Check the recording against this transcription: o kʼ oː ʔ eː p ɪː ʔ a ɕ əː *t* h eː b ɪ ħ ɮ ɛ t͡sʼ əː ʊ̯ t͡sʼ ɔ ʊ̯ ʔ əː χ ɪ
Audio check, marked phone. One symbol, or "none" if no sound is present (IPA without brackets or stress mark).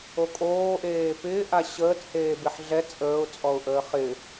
t